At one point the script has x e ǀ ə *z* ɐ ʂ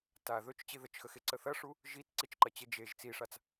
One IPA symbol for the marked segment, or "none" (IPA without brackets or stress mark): θ